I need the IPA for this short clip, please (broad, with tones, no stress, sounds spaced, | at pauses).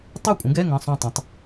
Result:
tˤ ʉ˥˨ kʷʼ ə̃˨˥ ɡ ɛ˧˥˧ ŋ ə̃˧˥˧ sˤ õ˥˨ tˤ õ˨˥ tˤ